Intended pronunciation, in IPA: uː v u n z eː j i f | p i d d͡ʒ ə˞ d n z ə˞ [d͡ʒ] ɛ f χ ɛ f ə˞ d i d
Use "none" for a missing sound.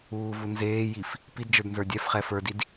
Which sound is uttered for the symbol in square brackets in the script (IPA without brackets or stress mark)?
dʲ